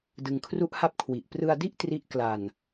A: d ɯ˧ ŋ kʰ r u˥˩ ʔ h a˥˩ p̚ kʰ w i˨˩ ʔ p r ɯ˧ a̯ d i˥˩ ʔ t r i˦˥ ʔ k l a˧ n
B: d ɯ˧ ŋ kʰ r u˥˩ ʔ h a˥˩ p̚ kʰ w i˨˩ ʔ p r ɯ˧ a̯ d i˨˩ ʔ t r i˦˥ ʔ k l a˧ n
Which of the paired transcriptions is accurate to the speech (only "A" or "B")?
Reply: A